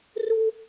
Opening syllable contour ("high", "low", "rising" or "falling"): high